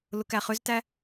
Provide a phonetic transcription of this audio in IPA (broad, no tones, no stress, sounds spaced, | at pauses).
l ʊ k æ χ ʏ z t æ